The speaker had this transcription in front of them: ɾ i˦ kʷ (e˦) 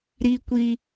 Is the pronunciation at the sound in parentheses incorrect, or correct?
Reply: incorrect: i˦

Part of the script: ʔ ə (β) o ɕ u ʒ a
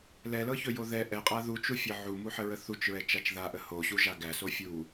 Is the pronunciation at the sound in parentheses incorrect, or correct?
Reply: incorrect: h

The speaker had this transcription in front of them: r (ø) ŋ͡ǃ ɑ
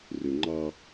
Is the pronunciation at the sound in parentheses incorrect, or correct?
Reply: correct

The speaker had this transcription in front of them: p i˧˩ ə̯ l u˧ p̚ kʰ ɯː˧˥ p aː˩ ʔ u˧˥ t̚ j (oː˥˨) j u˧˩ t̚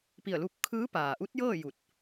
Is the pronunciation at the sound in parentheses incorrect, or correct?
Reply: incorrect: ɤː˥˨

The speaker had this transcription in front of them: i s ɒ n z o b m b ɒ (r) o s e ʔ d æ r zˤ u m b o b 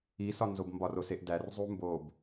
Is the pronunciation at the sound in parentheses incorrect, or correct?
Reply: correct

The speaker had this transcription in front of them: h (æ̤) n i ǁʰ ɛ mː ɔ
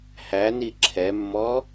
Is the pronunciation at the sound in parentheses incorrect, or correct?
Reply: incorrect: æ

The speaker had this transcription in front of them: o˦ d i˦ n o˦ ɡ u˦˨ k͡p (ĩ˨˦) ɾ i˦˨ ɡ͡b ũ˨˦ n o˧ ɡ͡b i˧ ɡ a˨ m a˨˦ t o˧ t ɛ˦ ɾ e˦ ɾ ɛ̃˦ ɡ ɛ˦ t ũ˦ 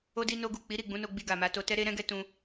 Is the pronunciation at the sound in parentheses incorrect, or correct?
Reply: incorrect: i˨˦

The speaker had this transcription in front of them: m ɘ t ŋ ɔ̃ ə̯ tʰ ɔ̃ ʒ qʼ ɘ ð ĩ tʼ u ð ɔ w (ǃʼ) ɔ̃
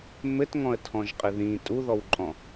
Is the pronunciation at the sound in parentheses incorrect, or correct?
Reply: correct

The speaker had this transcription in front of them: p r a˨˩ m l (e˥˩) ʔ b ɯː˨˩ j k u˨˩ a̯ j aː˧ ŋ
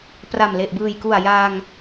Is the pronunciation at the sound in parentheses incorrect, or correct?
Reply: incorrect: e˨˩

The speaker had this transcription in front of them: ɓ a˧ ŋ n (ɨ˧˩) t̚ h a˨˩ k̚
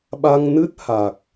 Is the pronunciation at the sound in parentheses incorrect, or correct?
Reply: incorrect: ɨ˦˥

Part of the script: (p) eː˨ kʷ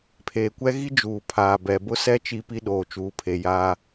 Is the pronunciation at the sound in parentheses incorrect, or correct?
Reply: incorrect: pʰ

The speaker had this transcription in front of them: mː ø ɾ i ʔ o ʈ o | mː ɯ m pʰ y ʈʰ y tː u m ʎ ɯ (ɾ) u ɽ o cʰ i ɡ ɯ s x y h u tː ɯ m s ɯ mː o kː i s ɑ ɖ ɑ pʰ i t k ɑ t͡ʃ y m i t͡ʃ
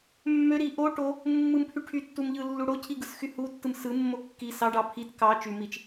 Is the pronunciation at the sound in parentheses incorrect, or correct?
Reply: incorrect: lː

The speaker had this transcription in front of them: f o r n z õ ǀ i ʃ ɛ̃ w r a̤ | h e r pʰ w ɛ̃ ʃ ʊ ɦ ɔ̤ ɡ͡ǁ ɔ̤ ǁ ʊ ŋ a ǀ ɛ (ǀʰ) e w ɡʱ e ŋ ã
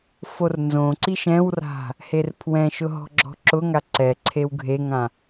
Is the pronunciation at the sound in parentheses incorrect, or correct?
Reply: correct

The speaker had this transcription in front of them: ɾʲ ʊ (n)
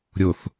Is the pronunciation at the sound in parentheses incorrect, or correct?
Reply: incorrect: θ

